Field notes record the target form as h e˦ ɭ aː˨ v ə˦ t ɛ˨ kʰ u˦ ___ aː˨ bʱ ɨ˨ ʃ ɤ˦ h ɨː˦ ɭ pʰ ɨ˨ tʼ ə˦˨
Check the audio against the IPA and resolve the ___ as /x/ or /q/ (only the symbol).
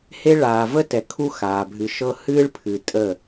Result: x